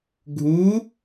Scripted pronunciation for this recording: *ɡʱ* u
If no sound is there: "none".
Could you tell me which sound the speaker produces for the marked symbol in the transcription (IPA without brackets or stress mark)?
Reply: ɡʱ